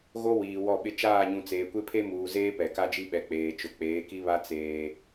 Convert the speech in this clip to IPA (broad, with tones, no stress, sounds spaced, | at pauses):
ɣ o˦ w iː˨ w ɔ˦˨ ɓ ɪ˦ t͡ʃ aː˦˨ ɲ ũ˨ t͡s eː˨ kʷ e˦ pʰ e˦ m uː˨ z eː˦ p ɛ˨ k a˦ d͡ʒ i˦ ɓ ɛ˨ k͡p eː˨ t͡ʃ ʊ˨ k͡p eː˨˦ k i˦ β a˦ t͡s eː˦